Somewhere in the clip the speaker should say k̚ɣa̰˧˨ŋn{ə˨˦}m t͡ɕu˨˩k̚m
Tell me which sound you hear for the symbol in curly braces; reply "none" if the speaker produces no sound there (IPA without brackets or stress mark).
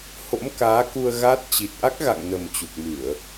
ə˨˩